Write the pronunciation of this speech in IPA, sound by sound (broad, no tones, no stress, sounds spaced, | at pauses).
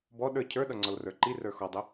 b ɔ ɗ ə˞ cʰ ə˞ ɗ ʌ ŋ͡ǀ ɔ l r ə˞ ǃ i r ə˞ x ɔ dˤ ɪ